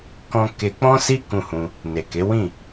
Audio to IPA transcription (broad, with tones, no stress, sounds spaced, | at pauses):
k ɔ̃˧ k e˧ k͡p ɔ̃˦ s i˦ k ũ˦˨ h ũ˧ | n e˨ k e˨˦ w ĩ˦˨